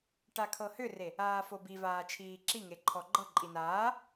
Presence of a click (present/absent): present